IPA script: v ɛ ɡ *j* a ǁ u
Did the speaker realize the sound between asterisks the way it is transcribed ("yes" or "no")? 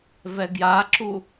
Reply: yes